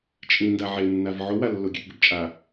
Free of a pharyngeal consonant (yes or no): no